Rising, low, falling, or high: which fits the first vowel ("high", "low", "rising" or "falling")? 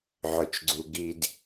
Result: low